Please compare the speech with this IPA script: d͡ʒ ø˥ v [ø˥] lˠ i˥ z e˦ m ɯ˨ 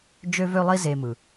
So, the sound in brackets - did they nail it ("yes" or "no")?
yes